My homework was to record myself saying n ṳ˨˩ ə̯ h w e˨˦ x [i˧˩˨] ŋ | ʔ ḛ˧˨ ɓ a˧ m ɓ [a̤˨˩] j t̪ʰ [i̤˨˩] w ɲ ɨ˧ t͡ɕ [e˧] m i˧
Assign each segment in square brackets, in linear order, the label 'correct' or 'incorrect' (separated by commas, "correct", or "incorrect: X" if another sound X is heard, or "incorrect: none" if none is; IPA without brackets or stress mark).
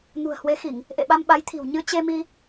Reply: correct, incorrect: a˨˦, correct, correct